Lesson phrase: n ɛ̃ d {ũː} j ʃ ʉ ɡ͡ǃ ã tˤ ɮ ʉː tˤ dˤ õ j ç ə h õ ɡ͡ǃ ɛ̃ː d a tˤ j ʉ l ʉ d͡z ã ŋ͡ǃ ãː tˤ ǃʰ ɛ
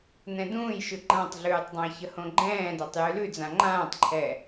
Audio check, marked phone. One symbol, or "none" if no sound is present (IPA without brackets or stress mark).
ũː